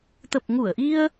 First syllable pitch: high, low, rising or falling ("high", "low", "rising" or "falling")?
low